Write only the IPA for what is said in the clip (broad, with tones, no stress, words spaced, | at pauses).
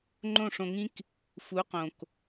ŋ͡ǃõ˦˨ʂõ˧ŋĩ˦k | fu˨˦qõ˨k